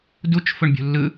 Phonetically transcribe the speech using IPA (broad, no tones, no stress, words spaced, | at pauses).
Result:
dut͡ʃ fʊɳbʲṳlːɯ